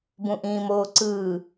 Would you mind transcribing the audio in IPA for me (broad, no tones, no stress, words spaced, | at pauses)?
bũʔĩːmoːǀɯː